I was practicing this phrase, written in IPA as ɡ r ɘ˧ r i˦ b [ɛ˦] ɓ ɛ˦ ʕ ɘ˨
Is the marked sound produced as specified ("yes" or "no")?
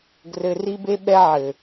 no